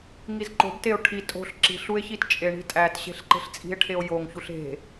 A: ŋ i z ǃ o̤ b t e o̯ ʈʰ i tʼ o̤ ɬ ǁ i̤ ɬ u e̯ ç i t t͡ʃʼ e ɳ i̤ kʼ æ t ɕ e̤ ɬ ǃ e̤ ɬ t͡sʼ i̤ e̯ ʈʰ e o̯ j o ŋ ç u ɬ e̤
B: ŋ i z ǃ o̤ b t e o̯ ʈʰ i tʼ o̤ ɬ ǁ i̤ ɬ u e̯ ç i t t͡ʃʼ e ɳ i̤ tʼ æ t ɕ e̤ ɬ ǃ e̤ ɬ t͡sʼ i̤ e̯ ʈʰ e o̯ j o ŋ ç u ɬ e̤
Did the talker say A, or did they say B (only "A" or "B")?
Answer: B